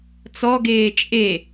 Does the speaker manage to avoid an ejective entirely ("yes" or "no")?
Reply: no